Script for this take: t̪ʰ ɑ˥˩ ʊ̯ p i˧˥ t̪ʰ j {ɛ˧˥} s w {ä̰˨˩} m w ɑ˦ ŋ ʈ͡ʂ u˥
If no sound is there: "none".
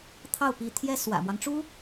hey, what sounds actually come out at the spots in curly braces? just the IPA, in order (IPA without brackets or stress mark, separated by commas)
ɛ˥, ä̰˨˩